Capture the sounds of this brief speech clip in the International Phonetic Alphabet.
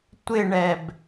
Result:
tʷ ɪ ɳ ɛ b

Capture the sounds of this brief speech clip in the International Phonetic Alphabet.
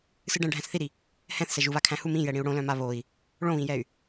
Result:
s ɨ ɖ ɛ̃ ɖʱ æ̃ s θ i ɾ i | h ɛ̃ θ s ɛ ʒ u β a kʰ æ̃ h u m ĩ j ɛ ɽ ĩ u̯ ɽ õ l œ̃ m a β o i̯ | ɭ õ β ĩ j ɛ y̯

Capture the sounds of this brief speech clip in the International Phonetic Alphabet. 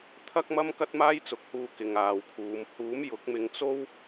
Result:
t̪ʰ ɐ˥ k̚ m ɐ˥ m k ɐ˥ t̚ m aː˥ j t͡s ʊ˨˥ k̚ h uː˧ k ɪ˨ ŋ aː˨ w kʰ uː˨˧ m h uː˨˥ m j ʊ˨˥ k̚ m ɪ˧ ŋ t͡s o˥ w

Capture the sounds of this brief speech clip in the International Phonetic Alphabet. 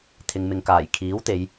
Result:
t̪ʰ ɪ˨ ŋ m ɪ˨ ŋ k aː˨˩ j kʰ iː˨˥ w t̪ e˨˧ j

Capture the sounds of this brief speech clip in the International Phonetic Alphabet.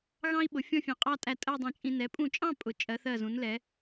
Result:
ɣ ɑ̃˥ i̯ ɓ ʊ˩˧ fʲ ɔ̃˥˧ fʲ ɑ̃˧˩ qʼ ɑ˥˧ tʼ æ˧ tʼ ɜ˥˧ dˤ ɛ̃˧˩ t͡ʃʼ ĩ˧ n ɛ˩˧ pʼ ũ˧˩ t͡ʃʼ ɑ̃˥˧ pʼ ʊ˩˧ t͡ʃʼ ɜ˩˧ θ ɜ˧˩ z ũ˩˧ n l ɛ˩˧

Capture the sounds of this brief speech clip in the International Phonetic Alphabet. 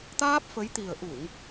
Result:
t̪ aː˦˥ p̚ f ə˨˦ j t̪ i˨˩ ə̯ ʔ u˧˩˨ ŋ

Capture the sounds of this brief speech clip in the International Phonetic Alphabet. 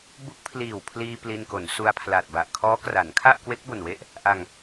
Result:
b u˦˥ k̚ pʰ l iː˨˩ w pʰ l iː˧ p l i˧ n k o˩˦ n s u˧ a̯ pʰ l a˨˩ t̚ b a˨˩ ʔ kʰ ɔː˦˥ k r a˩˦ n kʰ a˥˩ ʔ k w e˦˥ k̚ b o˨˩ n w e˥˩ ʔ | ʔ a˧ ŋ

